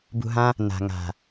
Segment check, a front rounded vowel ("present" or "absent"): absent